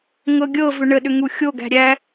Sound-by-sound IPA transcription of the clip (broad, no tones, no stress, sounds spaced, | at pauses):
ŋ ɤ ɡʲ ɤ v ʏ ɳ ə ɗ ʏ ŋ u xʲ o ɡ æ̤ ɾʲ æ